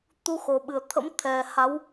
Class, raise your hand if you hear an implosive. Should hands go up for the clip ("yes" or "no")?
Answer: yes